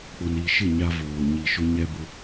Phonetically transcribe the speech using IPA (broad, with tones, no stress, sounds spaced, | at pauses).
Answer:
k͡p ʊ˨ n i˨ ʃ ɪ˦˨ ɲ a˦ v oː˨ ɲ i˨ ʃ ʊ˦ ɲ ɛ˦ b ʊ˦